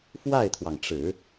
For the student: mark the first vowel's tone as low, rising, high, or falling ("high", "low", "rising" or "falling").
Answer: falling